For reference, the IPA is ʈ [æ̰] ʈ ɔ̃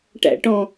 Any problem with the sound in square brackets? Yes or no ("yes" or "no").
no